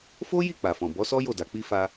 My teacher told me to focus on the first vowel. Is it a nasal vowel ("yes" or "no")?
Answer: no